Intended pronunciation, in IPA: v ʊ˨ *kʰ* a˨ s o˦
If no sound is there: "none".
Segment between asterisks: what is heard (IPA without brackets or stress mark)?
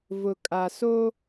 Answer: kʼ